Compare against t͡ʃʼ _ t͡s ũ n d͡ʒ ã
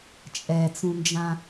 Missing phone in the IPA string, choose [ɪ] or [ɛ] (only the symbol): ɛ